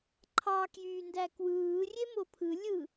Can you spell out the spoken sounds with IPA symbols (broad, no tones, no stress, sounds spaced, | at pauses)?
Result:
ǃʰ ɑ k j yː n d æ k w ɯː rʲ e m o pʰ ɯ lʲ ɯ